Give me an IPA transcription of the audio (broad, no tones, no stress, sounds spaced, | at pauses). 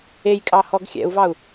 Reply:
e j kʼ ɑ h ɔ ɡ xʲ ɛ̰ u̯ v ɑ u̯